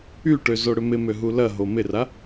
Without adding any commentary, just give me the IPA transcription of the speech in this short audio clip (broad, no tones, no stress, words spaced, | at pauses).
yʈø zoɽʏmɪmø ɦulɐɦo mɪra